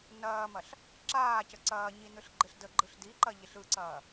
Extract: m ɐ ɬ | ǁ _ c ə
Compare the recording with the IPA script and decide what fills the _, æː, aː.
aː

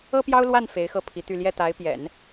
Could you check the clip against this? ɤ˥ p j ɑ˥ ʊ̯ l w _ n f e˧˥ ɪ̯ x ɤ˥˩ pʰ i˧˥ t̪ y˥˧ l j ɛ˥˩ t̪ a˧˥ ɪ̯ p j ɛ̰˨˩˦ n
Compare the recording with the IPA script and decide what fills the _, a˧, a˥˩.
a˥˩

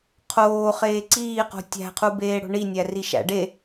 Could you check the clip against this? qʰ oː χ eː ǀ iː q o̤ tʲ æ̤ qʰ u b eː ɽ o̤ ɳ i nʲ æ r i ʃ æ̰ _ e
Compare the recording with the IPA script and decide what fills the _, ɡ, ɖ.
ɖ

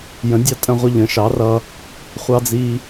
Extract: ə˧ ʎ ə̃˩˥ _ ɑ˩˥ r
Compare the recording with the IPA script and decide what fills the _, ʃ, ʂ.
ʃ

